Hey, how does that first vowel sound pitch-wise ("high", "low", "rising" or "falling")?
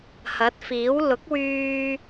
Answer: rising